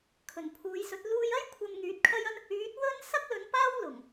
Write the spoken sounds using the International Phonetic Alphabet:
kʰ ɵ˨˩ n pʰ uː˨˧ j s ɵ˨˥ t̚ l uː˧ j ɐ˥ j kʷʰ ɐ˧ m ŋ yː˨˥ t̚ kʰ ɐ˥ j ɐ˥ n | yː˨˥ t̚ w ɵ˥ n s ɐ˥ k̚ l ɵ˨˧ n p aː˥ w l ʊ˨˩ ŋ

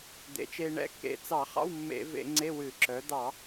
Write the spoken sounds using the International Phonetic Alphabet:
d̪ ḛ˩˥ t͡ʃ e˧ ɳ ɛ̰˧˥˧ kː ḛ˧ t͡s ɑ˧˩˧ χ ɑ̰˧˥˧ w mː ḛ˧˩˧ v ḛ˧˩˧ ŋ͡ǀ e˧˥˧ w ɨ˧˩˧ ǁ œ˩˥ d̪ ɑ˧˩˧

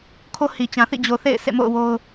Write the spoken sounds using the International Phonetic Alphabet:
kʰ o˦ h i˨ t͡ɕ ã˨ θ ḭ˦˨ d͡ʑ o˨ θ ḛ˦˨ ɪ̯ s ḛ˦˨ m o̰˦˨ ʊ̯ w o˦ ʊ̯

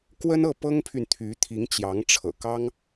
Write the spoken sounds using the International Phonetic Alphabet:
k w ə˥ n ɤ˥˩ p ɤ˥ ŋ pʰ y˨ n t̪ʰ y˧˥ t̪ʰ i˧˥ ŋ t͡ɕ j ɑ˧˥ ŋ ʈ͡ʂʰ ɤ̰˨˩ k ɑ˥ ŋ

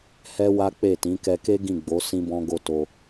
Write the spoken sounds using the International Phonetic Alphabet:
h ɛ˦ w a˦ k͡p e˦˨ t ĩ˨˦ k ɛ˧ k e˦ ɡ ĩ˦˨ ɡ͡b o˨˦ s ĩ˦ b ɔ̃˦ ɡ o˦ t o˧

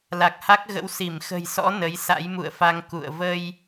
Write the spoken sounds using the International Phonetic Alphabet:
l a˨˩ k̚ h a˦˥ k̚ ɣ ə̰˧˥ w s i˧˩ m x ə̤˨˩ j s ɔ̰˧˥ n ə˨˦ j s a̰˧˥ j m ṵ˧˨ ə̯ f a˧ ŋ k ṵ˧˨ ə̯ v ə˧ j

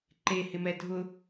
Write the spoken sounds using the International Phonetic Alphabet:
ǃ e h ɪ m ɛ dʱ ʊ

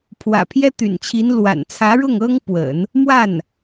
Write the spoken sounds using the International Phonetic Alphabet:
pʰ w ä̰˨˩ pʰ j ɛ˥ t̪ y̰˨˩ n t͡ɕʰ i˧˥ n l w a̰˨˩ n t͡sʰ ä˧˥ ɻ ʊ˥˩ ŋ ɤ˥ ŋ p w ə̰˨˩˦ n | m w a˥˩ n

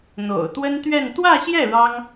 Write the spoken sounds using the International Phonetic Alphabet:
n̪ o̰˨˩ ʊ̯ t̪ w ə˥ n t̪ ɥ ɛ˥˧ n t̪ w ä˥˧ ɕ j ɛ˥˩ ɻ ɑ˥ ŋ

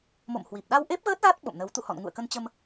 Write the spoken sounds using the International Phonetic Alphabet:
m o̰˧˨ m h w i˨˩ p̚ ɗ a˧ w ʔ e˦˥ p̚ ɣ əː˦˥ t̚ ɣ a˦˥ t̚ ɓ o̰˧˨ m n ə˨˦ w t̪ ṵ˧˨ h ɔ̰˧˨ n ŋ ṵ˧˨ ə̯ k ə˧ n t͡ɕ ə˧ m

